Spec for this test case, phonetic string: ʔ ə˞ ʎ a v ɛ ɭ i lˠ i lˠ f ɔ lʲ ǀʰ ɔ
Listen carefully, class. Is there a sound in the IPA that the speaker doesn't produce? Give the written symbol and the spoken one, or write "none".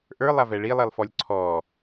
ʎ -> lˠ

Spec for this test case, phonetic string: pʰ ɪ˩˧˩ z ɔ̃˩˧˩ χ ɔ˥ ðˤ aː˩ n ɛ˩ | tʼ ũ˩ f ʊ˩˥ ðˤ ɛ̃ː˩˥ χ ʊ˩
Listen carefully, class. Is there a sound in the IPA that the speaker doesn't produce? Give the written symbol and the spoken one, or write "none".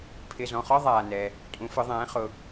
ũ˩ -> ũ˩˥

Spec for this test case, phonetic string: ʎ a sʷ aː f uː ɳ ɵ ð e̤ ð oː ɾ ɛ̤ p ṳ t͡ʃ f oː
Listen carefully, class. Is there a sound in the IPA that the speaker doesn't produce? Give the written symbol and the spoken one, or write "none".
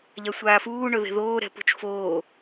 none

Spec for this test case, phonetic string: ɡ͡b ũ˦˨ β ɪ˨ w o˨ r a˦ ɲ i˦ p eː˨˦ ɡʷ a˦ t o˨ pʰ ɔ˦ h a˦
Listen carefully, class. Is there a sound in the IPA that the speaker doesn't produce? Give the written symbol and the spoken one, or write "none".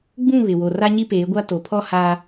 none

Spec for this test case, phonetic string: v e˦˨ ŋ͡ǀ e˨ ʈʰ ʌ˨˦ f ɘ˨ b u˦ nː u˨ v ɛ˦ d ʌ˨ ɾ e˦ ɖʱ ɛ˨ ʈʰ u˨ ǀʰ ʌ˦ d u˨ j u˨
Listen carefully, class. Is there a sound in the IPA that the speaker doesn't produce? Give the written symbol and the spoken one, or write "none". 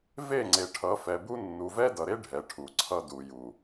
ɘ˨ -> ɛ˨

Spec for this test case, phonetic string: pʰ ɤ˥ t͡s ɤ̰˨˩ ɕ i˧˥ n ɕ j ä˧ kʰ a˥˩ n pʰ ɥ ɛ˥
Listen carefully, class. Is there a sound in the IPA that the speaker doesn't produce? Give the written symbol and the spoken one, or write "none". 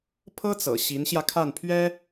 none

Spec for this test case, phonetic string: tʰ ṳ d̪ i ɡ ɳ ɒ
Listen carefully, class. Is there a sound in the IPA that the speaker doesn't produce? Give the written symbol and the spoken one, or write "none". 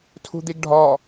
ɳ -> ɖʱ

